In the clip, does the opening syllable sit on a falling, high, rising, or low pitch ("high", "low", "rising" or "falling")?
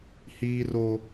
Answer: high